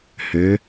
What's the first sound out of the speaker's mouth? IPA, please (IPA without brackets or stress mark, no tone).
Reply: h